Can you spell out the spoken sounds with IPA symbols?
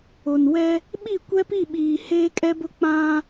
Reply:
o˨ n w ɛ˦ | ɓ i˦˨ kʷ ɛ˦ p i˦˨ ɓ iː˨ h eː˦ kʼ ɛ˦ b ʊ˦ k͡p ã˦

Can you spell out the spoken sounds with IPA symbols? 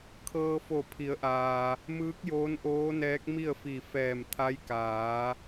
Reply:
kʰ ɤː˧ f o˧˩ pʰ i˩˧ ə̯ ʔ aː˩ | m ɯː˧˥ k̚ j oː˧˥ n ʔ oː˧˥ n ɛː˧˥ k̚ m i˥˨ ə̯ f i˧˩ f ɛː˧˩ m t̪ʰ a˧˥ j k aː˩˧

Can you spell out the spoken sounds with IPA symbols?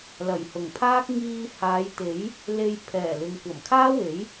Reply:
l ɐ˨˩ j h ʊ˨˩ ŋ pʰ aː˥ k̚ ŋ iː˧ h aː˨˧ j t̪ e˨˥ j | l e˧ j pʰ ɛː˨˩ l ɪ˨ ŋ kʷ ɐ˨˩ m kʰ aː˥ w e˨˥ j

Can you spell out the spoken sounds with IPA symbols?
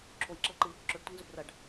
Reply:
ǁʰ o j ǁ ɐ l ǃ ɨ | ǁ ɵ ɖ tʷ i ŋ z ɵ b r ɐ ɖ

